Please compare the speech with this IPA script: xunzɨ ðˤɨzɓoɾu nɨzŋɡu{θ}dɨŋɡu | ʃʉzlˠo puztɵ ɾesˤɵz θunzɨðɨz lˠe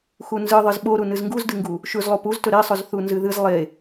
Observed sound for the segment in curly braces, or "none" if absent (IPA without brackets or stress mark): z